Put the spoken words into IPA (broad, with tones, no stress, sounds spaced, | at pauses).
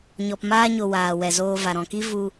ɲ ɔ˧ p m aː˦ ɲ o˧ w aː˨ w ɛ˨ z oː˧ v a˨ ɾ ɔ̃˨ k i˦ v u˧